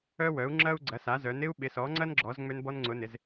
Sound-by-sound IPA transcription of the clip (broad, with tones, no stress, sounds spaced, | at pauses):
œ˥ w œ˨˥ u̯ ŋ͡ǁ ɐ˥ u̯ ɡ͡ǀ ɐ˨˥ s a˨˥ z œ˨˥ n ɪ˥ u̯ ɓ ɪ˨˥ s ɔ˨˥ ŋ͡ǀ ɐ˥ n ɡ͡ǁ ɔ˨˥ z ŋ͡m ø˥ n b ɔ˥ n ŋ͡ǀ ʊ˨˥ n ɪ˨˥ z